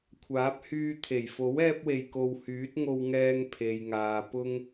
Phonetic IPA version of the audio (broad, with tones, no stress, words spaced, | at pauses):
kʷʰaː˨˥p̚hyː˧t̪ʰe˨˩j fo˨˥w ɛː˥p̚we˧jko˧w hyː˨˥t̚ŋo˧wŋɛː˧ŋ pʰe˨jŋaː˨ pʊ˧ŋ